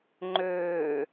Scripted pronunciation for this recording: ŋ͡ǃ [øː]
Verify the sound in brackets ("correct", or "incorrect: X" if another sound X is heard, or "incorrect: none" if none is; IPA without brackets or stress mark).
correct